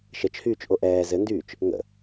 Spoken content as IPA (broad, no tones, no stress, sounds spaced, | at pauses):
ʃ ə t͡ʃ h yː t͡ʃ ʔ o ʔ ɛː z ɘ n d yː t͡ʃ | ŋ ə̰